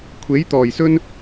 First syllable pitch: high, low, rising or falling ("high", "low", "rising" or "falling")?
rising